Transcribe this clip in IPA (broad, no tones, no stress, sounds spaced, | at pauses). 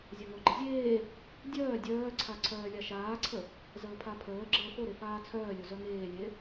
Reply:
zʲ a ŋ o ɡ͡ǃ ə zʲ eː | dʲ œː dʲ œː ǀʰ a ǀʰ œː lʲ a ʃ aː ǀʰ ə | z əː pʰ a pʰ əː ɡ͡ǁ əː f o ɾ e f aː t͡sʰ œː lʲ o z œ ŋ eː lʲ e